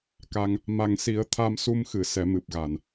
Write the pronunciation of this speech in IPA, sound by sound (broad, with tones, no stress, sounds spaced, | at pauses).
k a˧ ŋ | m a˨˩ ŋ s i˨˩˦ ə̯ t̪ʰ a˧ m s u˧ m x ɨ˨˩˨ s ɛ˨˩˦ m ɨ˨˩ p̚ ɣ a˨˩˨ n